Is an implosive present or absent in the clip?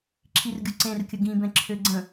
absent